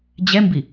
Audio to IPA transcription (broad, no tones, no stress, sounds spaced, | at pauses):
d͡ʑ ɛ m b i